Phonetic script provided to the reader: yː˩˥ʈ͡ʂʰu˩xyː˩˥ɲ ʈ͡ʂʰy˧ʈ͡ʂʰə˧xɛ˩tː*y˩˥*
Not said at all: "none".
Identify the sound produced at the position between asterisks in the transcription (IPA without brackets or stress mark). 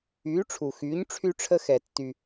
y˩